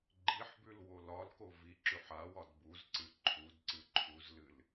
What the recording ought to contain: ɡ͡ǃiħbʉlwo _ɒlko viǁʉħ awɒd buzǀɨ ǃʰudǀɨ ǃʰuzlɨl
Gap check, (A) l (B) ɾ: A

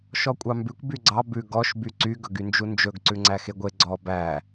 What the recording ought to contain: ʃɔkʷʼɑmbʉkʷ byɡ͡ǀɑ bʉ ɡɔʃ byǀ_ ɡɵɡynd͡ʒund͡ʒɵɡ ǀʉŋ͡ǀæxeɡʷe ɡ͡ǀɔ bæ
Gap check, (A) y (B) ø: A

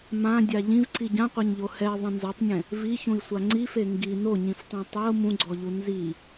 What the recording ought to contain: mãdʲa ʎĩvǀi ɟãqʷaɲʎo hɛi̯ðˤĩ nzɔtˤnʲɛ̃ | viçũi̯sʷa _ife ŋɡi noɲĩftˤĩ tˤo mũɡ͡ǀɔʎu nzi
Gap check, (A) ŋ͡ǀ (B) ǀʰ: A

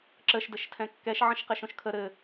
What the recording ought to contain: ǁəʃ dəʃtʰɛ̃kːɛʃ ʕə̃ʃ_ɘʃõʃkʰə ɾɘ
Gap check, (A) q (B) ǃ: A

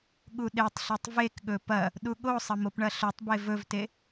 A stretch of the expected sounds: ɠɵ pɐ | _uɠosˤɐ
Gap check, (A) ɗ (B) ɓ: A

